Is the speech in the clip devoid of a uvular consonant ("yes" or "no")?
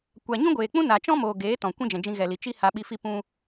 yes